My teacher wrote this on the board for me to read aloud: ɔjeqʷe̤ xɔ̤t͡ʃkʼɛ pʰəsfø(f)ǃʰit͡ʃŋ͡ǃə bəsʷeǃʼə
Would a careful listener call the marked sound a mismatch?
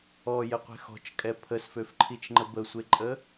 no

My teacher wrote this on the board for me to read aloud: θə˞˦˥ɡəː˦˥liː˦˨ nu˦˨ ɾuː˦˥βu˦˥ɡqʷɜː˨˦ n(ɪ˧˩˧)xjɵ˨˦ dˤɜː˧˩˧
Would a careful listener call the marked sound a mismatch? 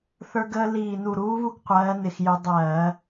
no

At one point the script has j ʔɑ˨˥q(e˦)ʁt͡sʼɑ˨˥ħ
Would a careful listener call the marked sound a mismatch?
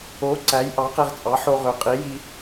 no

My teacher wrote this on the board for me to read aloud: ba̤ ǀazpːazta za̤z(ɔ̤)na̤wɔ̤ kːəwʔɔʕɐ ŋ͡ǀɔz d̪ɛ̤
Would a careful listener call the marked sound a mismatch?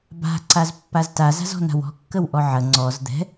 no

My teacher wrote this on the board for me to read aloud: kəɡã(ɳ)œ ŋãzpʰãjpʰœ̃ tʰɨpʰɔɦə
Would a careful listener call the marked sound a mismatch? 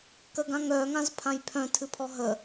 yes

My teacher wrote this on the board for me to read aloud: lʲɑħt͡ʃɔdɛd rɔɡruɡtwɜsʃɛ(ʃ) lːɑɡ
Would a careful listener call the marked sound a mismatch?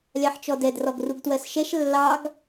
no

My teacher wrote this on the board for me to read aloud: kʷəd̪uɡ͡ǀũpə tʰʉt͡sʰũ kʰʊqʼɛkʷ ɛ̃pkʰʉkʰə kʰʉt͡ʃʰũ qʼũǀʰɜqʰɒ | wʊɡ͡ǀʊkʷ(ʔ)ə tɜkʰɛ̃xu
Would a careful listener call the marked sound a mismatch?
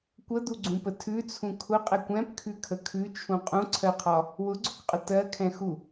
yes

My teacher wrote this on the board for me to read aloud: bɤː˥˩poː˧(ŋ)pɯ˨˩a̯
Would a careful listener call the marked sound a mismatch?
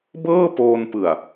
yes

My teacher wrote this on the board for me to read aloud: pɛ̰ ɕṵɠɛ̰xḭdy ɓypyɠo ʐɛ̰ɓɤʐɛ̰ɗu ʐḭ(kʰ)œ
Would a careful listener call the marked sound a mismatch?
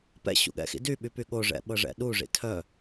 yes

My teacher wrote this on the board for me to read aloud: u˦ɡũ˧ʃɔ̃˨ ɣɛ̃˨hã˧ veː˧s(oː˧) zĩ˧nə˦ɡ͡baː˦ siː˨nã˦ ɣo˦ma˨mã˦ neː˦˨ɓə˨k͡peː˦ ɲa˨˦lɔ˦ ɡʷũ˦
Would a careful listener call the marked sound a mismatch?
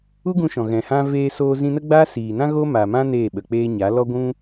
no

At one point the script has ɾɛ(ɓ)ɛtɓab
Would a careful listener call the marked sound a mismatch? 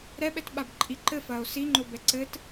no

